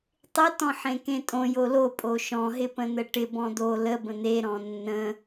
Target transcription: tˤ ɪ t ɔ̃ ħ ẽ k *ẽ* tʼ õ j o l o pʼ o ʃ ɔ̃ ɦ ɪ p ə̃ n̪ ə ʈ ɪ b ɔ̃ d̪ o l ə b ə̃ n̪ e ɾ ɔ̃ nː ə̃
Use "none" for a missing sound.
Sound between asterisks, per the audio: ẽ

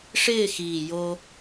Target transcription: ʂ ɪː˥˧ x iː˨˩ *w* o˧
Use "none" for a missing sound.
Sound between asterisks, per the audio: j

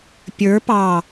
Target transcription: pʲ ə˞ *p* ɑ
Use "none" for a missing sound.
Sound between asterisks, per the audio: p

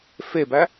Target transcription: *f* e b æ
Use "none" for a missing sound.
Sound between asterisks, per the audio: f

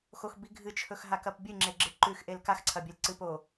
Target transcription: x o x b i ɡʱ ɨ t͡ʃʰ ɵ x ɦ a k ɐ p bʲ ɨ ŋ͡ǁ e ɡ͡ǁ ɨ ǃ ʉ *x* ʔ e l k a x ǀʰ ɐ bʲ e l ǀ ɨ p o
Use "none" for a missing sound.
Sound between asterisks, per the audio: x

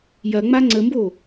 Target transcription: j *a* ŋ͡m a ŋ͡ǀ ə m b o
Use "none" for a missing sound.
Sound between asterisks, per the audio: ɐ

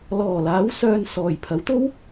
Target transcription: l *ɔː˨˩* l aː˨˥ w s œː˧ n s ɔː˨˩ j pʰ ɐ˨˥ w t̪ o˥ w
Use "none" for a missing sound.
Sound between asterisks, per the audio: ɔː˨˩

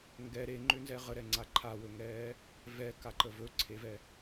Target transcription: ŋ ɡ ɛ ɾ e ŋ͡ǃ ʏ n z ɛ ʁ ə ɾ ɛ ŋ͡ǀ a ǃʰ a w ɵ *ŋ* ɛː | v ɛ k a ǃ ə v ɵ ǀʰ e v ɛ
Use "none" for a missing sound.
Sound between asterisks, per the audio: ŋ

